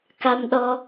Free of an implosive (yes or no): no